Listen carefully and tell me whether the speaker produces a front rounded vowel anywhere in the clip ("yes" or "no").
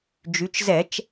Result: yes